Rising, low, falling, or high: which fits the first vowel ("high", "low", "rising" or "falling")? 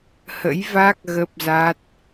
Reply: rising